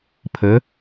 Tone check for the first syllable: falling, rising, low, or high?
rising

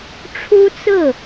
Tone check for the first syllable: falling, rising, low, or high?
high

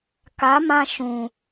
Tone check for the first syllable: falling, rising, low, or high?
rising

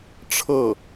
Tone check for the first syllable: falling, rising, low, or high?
falling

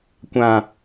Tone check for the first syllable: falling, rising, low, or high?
low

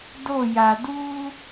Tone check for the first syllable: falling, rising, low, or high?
falling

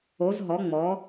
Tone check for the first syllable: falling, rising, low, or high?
rising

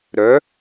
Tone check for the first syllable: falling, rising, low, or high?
rising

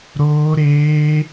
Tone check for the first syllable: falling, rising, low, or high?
high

